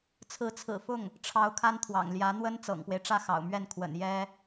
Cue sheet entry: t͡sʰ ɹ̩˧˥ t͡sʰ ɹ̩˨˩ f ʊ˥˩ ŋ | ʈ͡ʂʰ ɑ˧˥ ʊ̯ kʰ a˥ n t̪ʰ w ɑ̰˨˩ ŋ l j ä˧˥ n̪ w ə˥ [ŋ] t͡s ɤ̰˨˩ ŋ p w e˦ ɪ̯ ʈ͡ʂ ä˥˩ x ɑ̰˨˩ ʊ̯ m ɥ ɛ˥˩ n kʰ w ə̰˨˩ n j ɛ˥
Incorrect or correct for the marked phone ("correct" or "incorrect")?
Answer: incorrect